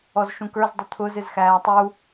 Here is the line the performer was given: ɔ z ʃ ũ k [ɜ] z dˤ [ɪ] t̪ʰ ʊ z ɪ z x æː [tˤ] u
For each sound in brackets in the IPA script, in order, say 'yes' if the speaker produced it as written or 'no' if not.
no, no, yes

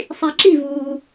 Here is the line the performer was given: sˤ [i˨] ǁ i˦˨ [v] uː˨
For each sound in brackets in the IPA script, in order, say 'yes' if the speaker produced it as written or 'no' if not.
yes, yes

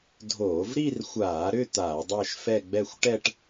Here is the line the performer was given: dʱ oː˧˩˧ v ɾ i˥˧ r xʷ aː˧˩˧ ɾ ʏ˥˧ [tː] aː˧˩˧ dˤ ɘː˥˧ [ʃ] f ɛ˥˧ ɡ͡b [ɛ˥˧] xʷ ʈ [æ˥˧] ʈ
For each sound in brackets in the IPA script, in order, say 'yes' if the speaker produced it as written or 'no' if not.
no, yes, yes, no

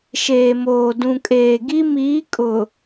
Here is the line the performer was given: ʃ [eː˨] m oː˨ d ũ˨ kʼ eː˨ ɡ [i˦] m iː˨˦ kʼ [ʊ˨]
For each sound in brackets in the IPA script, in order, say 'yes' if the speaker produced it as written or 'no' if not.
yes, yes, yes

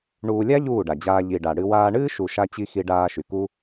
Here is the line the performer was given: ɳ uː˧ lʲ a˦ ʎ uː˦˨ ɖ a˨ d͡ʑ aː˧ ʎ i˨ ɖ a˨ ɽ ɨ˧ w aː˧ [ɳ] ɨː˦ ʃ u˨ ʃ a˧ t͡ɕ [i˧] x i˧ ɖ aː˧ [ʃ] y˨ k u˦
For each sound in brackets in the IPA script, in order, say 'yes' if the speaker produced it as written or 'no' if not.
yes, yes, yes

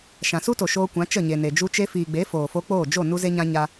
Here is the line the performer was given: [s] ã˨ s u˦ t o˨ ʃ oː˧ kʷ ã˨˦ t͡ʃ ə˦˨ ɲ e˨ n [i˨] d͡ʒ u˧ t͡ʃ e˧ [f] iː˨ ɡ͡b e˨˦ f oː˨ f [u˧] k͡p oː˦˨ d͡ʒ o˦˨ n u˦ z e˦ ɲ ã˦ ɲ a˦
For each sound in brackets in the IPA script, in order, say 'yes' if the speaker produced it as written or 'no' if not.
no, no, yes, no

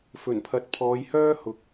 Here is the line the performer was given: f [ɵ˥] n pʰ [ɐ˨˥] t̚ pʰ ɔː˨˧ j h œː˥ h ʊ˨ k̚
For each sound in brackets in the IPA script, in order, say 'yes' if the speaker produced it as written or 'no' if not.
no, yes

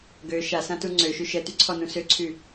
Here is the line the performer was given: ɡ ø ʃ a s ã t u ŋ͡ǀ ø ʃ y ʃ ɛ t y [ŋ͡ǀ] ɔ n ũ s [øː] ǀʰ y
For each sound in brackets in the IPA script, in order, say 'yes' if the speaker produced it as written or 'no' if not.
no, no

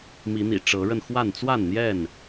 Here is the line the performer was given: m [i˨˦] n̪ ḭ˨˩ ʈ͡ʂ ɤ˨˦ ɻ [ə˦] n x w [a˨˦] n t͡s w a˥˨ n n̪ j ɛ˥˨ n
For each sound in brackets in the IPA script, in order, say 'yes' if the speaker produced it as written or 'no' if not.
yes, no, no

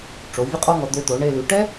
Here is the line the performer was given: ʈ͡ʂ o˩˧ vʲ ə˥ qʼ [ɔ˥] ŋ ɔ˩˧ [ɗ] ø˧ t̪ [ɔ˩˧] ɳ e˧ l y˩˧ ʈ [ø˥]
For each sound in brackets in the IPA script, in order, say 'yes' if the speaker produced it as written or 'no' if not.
yes, no, no, no

